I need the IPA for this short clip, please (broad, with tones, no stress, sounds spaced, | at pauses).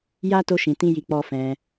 j a˦ t o˦ ʃ ĩ˧ t ĩ˦ j i˧ k͡p ɔ˧ f ɛ̃˧